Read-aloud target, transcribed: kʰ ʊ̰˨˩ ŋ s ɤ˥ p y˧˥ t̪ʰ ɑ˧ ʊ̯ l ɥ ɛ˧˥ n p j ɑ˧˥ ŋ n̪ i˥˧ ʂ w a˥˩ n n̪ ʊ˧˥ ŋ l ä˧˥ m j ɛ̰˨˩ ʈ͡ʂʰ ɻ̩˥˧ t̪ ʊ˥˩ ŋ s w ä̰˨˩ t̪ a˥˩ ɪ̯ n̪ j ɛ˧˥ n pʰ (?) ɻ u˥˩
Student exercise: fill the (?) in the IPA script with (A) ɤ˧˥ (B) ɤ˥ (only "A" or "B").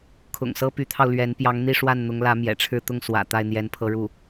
B